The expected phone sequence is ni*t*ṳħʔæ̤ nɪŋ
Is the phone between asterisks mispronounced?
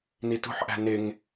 no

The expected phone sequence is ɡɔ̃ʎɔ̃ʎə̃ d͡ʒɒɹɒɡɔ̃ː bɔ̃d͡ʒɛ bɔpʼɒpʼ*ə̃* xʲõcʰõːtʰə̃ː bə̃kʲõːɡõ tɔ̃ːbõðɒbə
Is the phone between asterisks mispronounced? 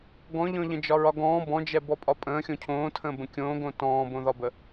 yes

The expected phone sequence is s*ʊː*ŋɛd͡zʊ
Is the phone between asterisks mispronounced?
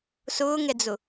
no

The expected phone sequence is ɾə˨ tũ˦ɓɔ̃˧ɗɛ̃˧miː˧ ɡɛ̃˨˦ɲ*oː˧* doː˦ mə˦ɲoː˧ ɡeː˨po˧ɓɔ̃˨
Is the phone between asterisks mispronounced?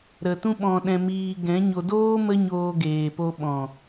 yes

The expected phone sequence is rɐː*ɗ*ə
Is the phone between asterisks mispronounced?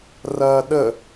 no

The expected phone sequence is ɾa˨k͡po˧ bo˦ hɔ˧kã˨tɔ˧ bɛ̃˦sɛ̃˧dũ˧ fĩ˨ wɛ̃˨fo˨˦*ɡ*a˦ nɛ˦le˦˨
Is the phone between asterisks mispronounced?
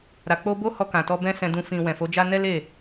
yes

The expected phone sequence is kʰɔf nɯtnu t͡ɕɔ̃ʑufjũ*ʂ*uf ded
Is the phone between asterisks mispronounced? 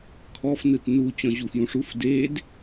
no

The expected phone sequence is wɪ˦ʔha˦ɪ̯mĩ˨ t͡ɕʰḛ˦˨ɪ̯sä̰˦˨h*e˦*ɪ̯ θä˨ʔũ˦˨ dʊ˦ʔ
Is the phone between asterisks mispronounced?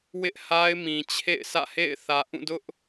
yes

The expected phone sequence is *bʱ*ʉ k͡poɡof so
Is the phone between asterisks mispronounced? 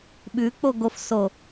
yes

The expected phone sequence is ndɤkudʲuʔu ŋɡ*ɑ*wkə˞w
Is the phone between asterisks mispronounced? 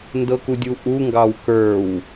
no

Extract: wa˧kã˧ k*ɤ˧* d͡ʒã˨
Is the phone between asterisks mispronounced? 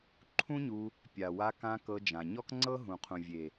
no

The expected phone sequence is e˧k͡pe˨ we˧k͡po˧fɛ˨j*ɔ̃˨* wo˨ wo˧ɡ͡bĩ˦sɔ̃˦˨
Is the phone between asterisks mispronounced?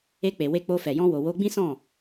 yes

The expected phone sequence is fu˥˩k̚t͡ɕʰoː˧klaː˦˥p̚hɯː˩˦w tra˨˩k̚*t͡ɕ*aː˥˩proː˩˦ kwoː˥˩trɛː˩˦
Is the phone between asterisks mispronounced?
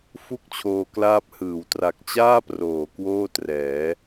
no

